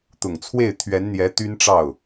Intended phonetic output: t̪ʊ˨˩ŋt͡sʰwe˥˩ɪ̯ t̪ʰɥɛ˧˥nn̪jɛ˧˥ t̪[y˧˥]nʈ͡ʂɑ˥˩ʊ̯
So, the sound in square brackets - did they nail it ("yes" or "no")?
no